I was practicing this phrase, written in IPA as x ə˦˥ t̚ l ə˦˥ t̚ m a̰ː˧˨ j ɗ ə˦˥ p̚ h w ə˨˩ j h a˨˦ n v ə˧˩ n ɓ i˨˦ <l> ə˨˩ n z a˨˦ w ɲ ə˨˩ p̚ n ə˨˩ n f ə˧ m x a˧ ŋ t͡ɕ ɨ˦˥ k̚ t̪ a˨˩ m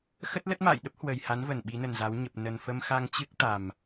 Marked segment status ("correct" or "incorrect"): incorrect